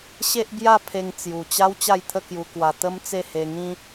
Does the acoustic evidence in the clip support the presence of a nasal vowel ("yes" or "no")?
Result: yes